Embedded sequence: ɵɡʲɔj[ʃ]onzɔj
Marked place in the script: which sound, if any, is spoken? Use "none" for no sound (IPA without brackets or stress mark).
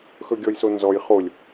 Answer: s